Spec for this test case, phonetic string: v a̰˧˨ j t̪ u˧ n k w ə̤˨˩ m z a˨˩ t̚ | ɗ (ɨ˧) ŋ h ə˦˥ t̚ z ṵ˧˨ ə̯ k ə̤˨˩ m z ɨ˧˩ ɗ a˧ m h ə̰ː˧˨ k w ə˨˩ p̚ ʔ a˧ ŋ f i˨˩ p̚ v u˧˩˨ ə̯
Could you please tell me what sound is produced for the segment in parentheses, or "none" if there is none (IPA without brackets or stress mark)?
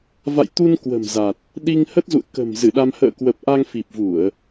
i˧